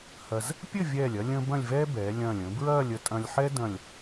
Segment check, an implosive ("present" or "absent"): absent